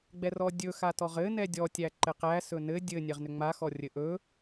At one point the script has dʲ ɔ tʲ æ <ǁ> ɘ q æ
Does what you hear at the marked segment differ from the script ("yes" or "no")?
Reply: yes